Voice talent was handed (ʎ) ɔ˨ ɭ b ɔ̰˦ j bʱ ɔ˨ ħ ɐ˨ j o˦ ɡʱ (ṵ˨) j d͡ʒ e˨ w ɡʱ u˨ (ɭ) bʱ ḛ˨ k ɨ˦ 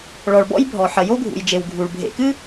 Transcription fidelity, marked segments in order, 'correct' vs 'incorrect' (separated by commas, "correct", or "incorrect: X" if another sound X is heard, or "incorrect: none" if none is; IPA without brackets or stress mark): incorrect: ɭ, correct, correct